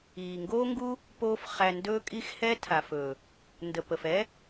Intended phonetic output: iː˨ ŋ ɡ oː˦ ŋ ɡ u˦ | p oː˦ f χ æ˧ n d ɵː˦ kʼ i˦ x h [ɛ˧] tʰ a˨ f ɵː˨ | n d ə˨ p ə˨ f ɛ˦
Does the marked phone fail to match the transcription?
yes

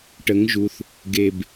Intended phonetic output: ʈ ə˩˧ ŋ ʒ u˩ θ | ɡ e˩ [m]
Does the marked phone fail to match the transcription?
yes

